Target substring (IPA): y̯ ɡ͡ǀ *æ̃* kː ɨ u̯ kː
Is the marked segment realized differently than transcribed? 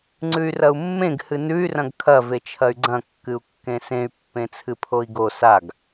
yes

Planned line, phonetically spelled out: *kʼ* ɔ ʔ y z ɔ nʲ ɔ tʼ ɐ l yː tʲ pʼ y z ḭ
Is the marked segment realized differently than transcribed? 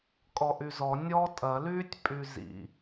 no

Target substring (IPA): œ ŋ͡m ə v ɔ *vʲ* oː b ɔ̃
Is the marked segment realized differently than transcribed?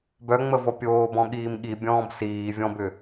yes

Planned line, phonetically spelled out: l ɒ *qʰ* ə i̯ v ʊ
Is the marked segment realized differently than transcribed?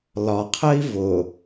no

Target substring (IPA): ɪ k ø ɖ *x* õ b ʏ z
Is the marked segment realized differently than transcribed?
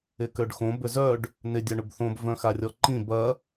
no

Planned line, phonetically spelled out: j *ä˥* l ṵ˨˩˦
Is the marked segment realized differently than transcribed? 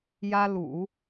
no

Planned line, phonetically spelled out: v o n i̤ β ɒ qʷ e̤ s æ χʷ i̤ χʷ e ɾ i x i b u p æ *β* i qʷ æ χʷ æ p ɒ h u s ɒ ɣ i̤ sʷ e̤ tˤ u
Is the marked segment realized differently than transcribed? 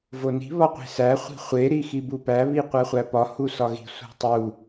no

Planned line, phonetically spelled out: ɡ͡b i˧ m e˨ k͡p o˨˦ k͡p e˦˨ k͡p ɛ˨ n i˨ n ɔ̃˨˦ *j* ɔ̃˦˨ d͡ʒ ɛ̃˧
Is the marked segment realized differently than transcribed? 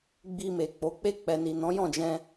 no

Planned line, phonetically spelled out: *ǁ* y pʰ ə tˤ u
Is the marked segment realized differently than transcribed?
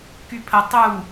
yes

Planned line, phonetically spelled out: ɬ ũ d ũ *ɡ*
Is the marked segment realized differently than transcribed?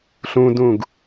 no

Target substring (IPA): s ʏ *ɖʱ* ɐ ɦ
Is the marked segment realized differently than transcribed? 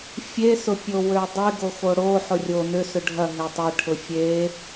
no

